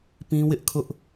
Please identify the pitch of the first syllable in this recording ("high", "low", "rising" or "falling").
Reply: high